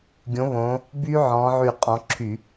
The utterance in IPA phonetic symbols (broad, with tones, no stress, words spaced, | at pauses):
ɡʲõ˨˦ βõ˨˦ | by˦˥ ʕɔ̃˨˦ʕy˧˩ qʼɔ̃˨˦ǁʰy˧˩˧